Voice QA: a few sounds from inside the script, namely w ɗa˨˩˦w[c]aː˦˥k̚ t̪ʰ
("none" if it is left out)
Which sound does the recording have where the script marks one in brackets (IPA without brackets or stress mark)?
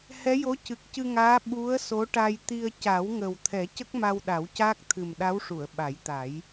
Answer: c